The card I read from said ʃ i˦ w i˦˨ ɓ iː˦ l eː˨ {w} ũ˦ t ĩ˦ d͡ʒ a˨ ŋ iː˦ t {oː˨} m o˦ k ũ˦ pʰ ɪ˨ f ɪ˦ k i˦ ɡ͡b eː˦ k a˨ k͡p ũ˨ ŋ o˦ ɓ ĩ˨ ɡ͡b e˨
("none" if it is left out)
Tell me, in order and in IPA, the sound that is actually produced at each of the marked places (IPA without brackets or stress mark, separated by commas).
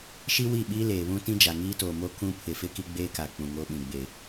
β, oː˨